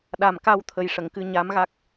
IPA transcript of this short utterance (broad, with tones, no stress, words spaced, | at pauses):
ɗa˨˩mka˧wt̪ʰə˨˩jʂə˨˩˨ŋ kɨ˧ɲa˧˥mɣa˦˥k̚